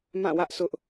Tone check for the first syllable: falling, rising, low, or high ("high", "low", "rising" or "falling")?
falling